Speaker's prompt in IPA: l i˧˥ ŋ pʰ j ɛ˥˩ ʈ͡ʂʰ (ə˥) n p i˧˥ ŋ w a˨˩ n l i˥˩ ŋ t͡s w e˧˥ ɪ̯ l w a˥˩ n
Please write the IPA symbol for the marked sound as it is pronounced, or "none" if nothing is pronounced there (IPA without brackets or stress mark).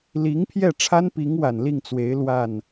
a˥